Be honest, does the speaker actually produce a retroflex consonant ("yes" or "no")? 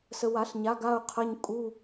no